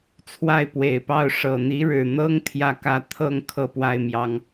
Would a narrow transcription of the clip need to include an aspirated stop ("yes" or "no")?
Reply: yes